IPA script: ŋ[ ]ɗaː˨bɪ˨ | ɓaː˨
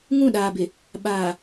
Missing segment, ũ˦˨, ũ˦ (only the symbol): ũ˦˨